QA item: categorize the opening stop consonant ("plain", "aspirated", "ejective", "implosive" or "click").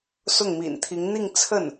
aspirated